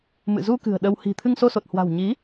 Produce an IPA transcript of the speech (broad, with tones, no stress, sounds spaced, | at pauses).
m ɨ̰˧˨ z u˧ k ɨ̤˨˩ ə̯ ɗ ə˧ w h i̤˨˩ t̪ʰ ɨ˧ ŋ s o˧ s o˨˩ t̚ h w a̤˨˩ w ɲ i˨˦